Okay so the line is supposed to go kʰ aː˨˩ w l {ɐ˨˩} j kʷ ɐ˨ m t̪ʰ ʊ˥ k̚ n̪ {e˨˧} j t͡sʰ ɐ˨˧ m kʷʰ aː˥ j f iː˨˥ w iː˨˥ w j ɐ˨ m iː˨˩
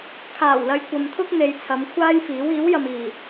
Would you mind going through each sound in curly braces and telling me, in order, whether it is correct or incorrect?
incorrect: ɐ˨, correct

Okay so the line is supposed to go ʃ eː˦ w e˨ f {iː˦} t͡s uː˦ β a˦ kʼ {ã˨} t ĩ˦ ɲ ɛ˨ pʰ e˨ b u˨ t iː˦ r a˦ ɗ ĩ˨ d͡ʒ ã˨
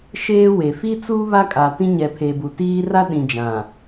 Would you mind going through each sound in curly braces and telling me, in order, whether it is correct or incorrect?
incorrect: i˦, incorrect: a˨

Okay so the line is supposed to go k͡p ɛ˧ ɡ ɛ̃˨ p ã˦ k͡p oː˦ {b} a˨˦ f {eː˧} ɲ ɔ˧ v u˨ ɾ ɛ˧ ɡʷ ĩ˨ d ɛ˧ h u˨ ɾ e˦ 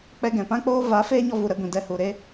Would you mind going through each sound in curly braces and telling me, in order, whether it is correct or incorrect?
incorrect: v, incorrect: eː˦

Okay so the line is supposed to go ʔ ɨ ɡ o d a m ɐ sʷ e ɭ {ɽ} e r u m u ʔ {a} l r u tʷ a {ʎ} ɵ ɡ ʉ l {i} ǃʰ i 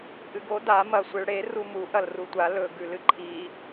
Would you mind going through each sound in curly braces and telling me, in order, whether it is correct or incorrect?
correct, incorrect: ɐ, incorrect: l, incorrect: ɨ

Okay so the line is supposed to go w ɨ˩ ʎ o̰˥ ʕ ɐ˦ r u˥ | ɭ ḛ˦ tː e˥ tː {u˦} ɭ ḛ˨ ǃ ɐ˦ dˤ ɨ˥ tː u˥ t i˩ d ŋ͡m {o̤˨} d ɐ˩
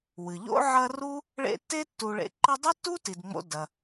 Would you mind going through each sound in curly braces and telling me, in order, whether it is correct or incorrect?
incorrect: u˨, incorrect: o̰˨

